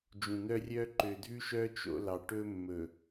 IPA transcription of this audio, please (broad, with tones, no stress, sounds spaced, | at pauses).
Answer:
d͡ʒ ũ˨ n̪ œ˦ rʲ œ˦ ǃ ø˨ dʱ ʉ˦ ʃ œ˦ t͡ʃ o̰˦ l ɑ˨ ʈ ɵ˦ mː ɵ˨